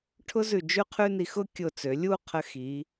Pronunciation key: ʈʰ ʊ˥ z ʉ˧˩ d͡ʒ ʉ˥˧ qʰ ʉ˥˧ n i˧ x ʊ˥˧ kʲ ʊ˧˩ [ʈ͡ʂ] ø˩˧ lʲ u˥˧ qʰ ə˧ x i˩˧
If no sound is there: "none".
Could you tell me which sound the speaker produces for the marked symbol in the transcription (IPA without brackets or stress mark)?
t͡s